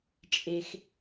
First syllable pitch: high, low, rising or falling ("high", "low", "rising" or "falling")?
low